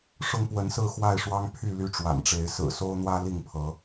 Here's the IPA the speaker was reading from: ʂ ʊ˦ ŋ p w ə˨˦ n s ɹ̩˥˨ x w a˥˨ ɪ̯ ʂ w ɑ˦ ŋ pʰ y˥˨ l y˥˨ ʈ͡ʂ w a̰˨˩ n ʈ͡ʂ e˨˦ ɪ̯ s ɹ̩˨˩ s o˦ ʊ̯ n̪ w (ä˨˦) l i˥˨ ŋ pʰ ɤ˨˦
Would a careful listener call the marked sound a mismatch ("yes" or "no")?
yes